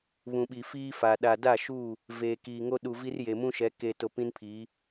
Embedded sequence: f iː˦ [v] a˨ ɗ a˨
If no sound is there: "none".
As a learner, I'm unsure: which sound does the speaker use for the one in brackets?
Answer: f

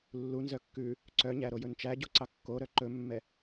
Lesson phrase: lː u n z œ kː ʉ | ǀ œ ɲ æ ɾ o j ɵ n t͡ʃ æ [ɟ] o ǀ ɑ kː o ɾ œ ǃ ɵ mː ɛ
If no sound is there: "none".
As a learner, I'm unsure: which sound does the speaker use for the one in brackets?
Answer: ɟ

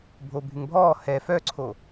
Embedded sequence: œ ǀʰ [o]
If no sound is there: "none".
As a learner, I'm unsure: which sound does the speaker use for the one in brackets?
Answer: o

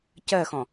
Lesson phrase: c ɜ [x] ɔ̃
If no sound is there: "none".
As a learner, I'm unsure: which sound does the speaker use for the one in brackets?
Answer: x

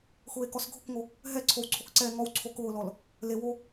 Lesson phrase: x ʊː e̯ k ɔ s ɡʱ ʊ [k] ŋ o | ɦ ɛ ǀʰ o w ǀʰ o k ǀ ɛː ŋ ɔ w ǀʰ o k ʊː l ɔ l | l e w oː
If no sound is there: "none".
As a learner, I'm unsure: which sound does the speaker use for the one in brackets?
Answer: k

